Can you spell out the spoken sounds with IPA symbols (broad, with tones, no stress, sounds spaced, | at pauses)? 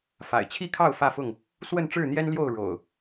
f a̰˨˩ ɪ̯ t͡ɕʰ i˥˨ kʰ ɑ˥˨ ʊ̯ f ä˥˨ f ʊ˥˨ ŋ | s w ə˥˨ n ʈ͡ʂ ɻ̩˥˨ n̪ j ɛ˦ n l j o˥˨ ʊ̯ ɻ o̰˨˩ ʊ̯